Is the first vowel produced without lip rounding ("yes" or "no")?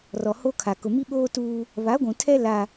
no